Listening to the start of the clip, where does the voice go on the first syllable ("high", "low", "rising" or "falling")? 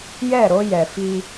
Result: falling